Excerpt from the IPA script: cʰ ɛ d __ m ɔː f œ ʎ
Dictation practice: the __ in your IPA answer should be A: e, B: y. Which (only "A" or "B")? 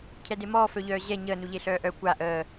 A